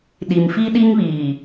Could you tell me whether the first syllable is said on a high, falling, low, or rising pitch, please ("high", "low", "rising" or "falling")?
low